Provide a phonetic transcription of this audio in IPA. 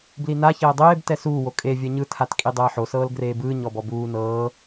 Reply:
b l i n a ç ɛː dˤ eː b t ɛ s uː w o kʼ e vʲ ɛ ɲ ɯ tʰ a t kʼ i dˤ ɛː ħ o s ɤː l ɡ r eː b ɯː ɲ ɔ b ɔ b uː n ɤː

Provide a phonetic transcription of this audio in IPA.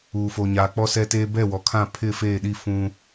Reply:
uː˨ f oː˨ ɲ aː˨ k͡p ɔ˦ s ɛ˦ t eː˦ b ɛ˦˨ w ɔ˨ kʰ ã˦˨ pʰ ɪ˦˨ f eː˦˨ ɗ i˦˨ f ũ˦

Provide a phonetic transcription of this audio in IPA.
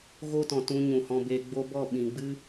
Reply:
ɣ o˦ t ɔ̃˨ t ũ˧ ɲ ũ˨ h ɔ̃˧ b eː˧ ɡ͡b o˦ b ɔ˦˨ ɓ ĩ˨ ɡ͡b ɨ˦

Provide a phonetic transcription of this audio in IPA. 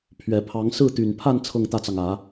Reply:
pʰ ɥ ɛ˨˩ pʰ ɑ˧˥ ŋ s ɹ̩˥˩ t̪ y˨˩ n pʰ a˥˧ n t͡sʰ ɤ˥˧ ŋ t̪ ä˥˩ t͡s ɑ˩ ŋ ä˨˩˦

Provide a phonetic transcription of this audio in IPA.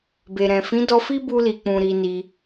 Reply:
b e˨ ɾ ɛ̃˨ f ĩ˨˦ d ɔ˧ f i˦ b u˧ l i˨ k͡p ũ˨ ɾ i˧ n i˧

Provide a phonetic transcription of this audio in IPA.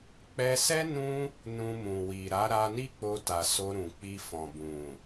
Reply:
k͡p ɛ˧ s ɛ˦ n ũ˦ | n ũ˧ m ũ˨ w i˨ ɾ a˨˦ ɾ a˧ n i˦ k͡p o˧ t a˨ s o˧ ɾ ũ˨ k͡p i˧ f ɔ̃˨ b ũ˨

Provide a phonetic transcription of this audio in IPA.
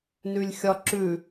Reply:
n ʉ lʲ xʲ ɒ ǁ ʉ

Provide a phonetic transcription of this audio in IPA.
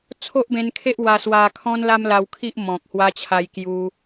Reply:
t͡sʰ o˦ ʔ b ẽ˧ n kʰ e˦ ʔ w a˧ s w a˧ kʰ ɔ̃˦ n l a˦ m l a˧ w kʰ i˦ ʔ m ɔ̃˨ k̚ h w a˧ t͡ɕʰ a˧ j k j u˧

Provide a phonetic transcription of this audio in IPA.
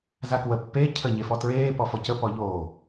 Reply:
z a k w ə pː e cʰ ə ɲ e f ɔ t ɹ eː p ɔ f ɔ c ə p ɔ ʎ oː

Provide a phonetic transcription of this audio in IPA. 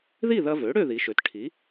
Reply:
ð i˥˨ ð ɐ˧ v ø˩˥ ɽ ø˥˨ ð i˩˧ ʃ ø˩˧ t ʈʰ i˩˥

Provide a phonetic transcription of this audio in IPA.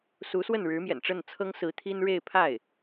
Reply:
s u˧˥ s w ə˥˩ n ɻ ɻ̩˧˥ m j ɛ̰˨˩ n ʈ͡ʂ ə˥˩ n t͡sʰ ɤ˥ ŋ s ɹ̩˧˥ t̪ʰ i˥ n ɻ e˥˧ ɪ̯ pʰ a˥˩ ɪ̯

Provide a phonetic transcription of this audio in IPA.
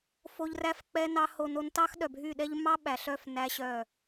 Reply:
f o˧ ʎ r æ˦ f k͡p ɛ˦ n ɑ˦ h o˧ n o˧ n t ɑ˦ x ɗ œ˨ bʱ y˦˨ ɗ ɛ˦ ʎ m ɑ˦ ɓ æ˨ ɬ œ˦˨ f n æ˦ ɕ œ˦˨

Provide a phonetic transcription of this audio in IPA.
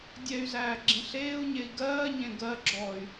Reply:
dʲ ɛ y̯ z æː ɡ͡ǁ ĩ ɬ eː u̯ ɲ e i̯ ɡ ɜː ɲ ẽ ɡ ɜ ɡ͡ǁ ɔː y̯

